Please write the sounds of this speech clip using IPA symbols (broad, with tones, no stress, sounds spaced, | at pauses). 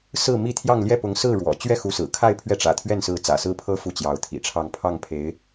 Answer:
s ɹ̩˥˧ m i˥˧ t̪ʰ j ɑ˥˧ ŋ l j ɛ˥˩ p ʊ˧˥ ŋ s ɹ̩˥˩ ɻ w ɔ̰˨˩ t͡ɕ ɥ ɛ˥˩ x u˧˥ s ɹ̩˨˩ kʰ a˥˧ ɪ̯ pʰ ɥ ɛ˥˩ ʈ͡ʂ ä̰˨˩ t̪ʰ ɥ ɛ˥˩ n s ɹ̩˧˥ t͡s ä̰˨˩ s ɹ̩˥ pʰ ɤ˥ f u˥˩ t͡ɕ j ɑ˧˥ ʊ̯ t̪ʰ ḭ˨˩ ʈ͡ʂʰ ɑ˥˧ ŋ pʰ ɑ˥˩ ŋ pʰ e˧˥ ɪ̯